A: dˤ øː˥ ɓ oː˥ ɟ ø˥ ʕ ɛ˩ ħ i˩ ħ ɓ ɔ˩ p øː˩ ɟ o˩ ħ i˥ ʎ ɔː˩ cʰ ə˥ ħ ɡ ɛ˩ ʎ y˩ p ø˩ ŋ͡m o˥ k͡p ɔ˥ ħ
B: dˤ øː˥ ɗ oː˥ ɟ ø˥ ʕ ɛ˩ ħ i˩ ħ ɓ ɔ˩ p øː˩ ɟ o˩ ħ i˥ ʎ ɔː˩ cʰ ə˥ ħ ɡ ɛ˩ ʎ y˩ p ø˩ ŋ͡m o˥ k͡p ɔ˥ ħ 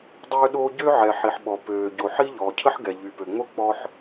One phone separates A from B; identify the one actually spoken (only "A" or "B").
B